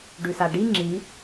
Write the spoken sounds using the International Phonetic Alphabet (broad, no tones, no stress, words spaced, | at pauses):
ɖʉsaɖi ŋ͡ǁi